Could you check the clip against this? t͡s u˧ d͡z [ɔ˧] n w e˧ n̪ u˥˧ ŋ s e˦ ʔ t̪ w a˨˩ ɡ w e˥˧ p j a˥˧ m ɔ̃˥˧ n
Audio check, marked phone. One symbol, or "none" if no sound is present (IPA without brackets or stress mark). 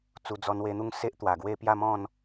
ɔ˧